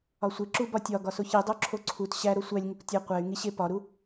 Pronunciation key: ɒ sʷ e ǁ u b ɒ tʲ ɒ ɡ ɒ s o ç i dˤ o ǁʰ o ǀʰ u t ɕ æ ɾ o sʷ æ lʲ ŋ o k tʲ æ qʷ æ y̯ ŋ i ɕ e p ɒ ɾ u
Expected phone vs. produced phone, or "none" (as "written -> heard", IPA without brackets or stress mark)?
none